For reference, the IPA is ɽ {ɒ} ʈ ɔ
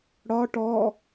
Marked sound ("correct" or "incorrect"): correct